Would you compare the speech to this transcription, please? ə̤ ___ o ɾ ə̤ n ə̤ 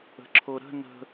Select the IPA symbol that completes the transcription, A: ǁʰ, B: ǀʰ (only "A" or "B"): A